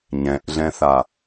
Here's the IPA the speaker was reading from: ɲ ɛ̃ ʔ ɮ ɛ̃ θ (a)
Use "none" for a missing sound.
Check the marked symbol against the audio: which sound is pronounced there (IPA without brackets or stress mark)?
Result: a